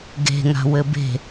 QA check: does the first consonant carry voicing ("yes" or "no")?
yes